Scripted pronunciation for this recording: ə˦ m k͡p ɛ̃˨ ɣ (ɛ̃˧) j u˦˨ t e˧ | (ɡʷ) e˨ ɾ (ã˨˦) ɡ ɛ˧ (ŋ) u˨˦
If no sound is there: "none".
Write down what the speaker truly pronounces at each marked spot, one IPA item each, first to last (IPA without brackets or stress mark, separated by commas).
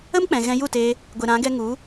ɛ̃˧, ɡʷ, ã˨˦, ŋ